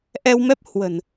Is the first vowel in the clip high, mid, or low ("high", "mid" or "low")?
mid